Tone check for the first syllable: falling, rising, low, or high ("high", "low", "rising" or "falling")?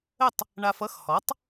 falling